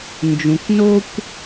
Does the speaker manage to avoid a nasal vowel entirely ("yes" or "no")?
no